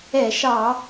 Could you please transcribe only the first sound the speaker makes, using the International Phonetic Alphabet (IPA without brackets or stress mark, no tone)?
ɛ